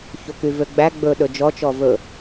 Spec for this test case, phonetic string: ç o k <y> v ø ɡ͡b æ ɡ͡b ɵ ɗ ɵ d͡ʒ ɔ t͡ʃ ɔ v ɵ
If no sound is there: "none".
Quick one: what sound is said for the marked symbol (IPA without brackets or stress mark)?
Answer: y